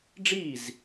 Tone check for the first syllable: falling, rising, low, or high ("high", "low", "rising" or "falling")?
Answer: falling